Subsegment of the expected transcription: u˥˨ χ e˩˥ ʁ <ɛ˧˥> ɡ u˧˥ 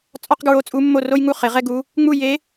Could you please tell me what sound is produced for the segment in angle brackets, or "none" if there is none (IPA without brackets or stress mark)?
ɛ˥